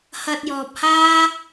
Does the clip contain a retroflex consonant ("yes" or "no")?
no